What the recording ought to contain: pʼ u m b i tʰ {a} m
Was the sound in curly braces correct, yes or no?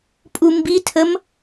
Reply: no